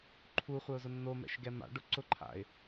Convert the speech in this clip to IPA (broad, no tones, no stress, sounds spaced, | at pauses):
ǃʰ u χʷ ɛ ʊ̯ z ʊ nː o m ɛ̰ ʃ ɡ ɛ m a̰ ɖ ʊ ǀ ʊ ǃʰ a̰ ɪ̯